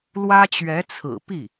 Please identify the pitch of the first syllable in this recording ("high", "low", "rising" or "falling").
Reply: high